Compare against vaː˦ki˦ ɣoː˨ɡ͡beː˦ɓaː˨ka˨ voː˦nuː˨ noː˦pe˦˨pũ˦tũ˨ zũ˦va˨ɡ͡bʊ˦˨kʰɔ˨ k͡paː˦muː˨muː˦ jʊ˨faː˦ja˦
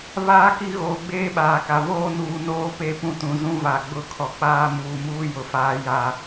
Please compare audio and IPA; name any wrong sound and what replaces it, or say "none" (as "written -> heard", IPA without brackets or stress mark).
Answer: none